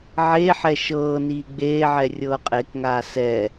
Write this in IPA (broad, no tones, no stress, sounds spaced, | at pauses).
ʕ eː ħ ɛ ʃ ɤː n iː ɡ͡b eː ʕ ɛ rʲ ɤː qʼ e k ŋ aː s ɛ